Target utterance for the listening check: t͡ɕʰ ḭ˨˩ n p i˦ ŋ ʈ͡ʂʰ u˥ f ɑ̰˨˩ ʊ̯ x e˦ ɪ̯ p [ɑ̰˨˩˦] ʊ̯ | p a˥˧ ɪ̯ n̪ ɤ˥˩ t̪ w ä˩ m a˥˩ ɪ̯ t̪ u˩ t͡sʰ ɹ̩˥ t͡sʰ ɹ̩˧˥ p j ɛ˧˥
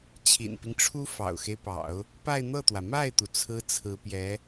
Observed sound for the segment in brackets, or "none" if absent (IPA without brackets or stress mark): ɑ̰˨˩˦